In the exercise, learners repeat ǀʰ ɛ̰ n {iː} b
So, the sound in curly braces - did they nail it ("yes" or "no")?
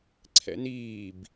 yes